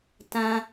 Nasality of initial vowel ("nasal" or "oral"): nasal